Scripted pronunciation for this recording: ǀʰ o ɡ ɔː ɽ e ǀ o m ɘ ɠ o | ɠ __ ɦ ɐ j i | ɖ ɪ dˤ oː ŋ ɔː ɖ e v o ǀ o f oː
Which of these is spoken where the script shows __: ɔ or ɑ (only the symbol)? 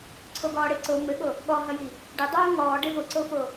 ɔ